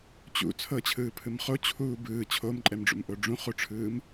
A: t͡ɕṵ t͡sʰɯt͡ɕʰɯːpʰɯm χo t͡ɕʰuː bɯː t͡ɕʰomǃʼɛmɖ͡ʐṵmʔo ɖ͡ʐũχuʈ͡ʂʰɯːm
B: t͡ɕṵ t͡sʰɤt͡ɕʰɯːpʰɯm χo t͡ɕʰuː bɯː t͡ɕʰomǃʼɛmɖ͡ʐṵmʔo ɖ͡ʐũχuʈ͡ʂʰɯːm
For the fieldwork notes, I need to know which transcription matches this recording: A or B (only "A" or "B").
B